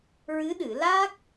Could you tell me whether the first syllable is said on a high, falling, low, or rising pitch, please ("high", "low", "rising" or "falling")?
rising